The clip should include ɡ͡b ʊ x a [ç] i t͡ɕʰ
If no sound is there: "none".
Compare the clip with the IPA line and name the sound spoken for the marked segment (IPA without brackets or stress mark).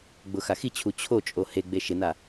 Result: x